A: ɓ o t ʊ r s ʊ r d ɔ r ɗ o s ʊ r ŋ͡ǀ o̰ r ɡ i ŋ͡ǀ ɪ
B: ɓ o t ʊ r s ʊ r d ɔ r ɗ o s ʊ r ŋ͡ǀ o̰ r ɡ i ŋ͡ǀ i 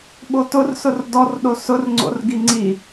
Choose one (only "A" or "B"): B